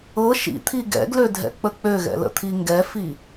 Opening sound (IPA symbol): ɤ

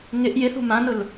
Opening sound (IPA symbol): ŋ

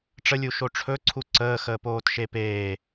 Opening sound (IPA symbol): ʈ͡ʂ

